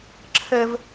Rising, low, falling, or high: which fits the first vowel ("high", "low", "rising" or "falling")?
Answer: high